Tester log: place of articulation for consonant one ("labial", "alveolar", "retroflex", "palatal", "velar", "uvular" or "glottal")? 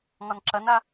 velar